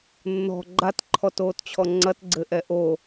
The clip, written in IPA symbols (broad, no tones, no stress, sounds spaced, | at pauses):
nː ɔ̤ ɡ͡ǃ a t ǃʰ ɔ t oː t t͡ɕʰ ɔ ŋ͡ǀ ɐ t ɡ͡ǀ ɘ ʔ ɛ ʔ o